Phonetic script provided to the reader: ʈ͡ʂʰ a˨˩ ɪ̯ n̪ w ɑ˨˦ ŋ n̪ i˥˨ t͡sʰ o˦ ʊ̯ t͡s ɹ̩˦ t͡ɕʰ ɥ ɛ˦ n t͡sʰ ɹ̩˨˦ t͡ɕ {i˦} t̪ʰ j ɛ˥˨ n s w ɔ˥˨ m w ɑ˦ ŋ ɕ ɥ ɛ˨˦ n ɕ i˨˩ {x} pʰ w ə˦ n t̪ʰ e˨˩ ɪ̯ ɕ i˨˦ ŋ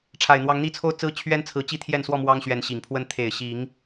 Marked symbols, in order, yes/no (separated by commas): yes, no